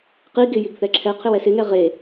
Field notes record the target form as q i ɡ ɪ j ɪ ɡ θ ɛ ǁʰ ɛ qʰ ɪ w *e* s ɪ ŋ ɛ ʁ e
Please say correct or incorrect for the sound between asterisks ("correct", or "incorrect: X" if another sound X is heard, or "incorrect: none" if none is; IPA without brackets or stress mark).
incorrect: ɛ